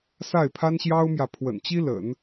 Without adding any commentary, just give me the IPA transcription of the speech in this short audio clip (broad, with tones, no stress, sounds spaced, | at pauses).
s a˥˩ ɪ̯ pʰ a˥ n ɕ j ɑ˥ ʊ̯ m j ä˨ pʰ w ə̰˨˩ n t͡ɕ i˥ l ə̰˨˩˦ n